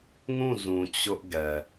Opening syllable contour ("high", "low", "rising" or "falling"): falling